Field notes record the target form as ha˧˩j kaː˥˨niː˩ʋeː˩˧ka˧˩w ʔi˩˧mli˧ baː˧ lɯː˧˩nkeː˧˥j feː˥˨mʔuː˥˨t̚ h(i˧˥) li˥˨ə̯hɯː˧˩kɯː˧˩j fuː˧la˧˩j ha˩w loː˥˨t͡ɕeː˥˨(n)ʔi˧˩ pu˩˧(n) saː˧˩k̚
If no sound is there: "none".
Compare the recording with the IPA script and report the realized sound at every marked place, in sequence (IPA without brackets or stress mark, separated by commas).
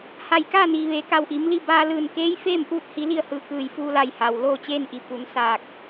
i˧˥, n, n